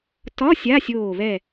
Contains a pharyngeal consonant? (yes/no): no